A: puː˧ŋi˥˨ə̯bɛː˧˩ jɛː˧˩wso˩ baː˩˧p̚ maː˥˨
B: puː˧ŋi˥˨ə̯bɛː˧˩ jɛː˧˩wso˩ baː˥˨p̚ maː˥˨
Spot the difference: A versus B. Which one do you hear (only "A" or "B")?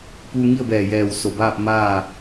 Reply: B